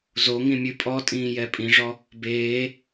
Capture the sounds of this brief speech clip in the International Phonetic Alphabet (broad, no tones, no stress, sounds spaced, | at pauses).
z o ŋ ĩ mʲ ʉ pʼ ɔ tʼ ĩː j ɛ pʼ ĩ ʐ ɔ | b eː